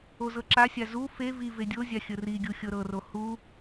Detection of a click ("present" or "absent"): present